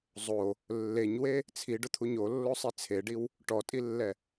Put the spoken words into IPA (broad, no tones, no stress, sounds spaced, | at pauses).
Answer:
zˤ o | lː e ɲ w e | t͡sʰ i ɖ ʊ t̪ʰ u ɲ o lː o sˤ i t͡sʰ e ɖ i w | ʈ ɔ tʼ i lː ɛ